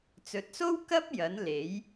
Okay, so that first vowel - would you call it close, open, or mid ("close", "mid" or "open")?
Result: mid